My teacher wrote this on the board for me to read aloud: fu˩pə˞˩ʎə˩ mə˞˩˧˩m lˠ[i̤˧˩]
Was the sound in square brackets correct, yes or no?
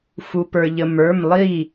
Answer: no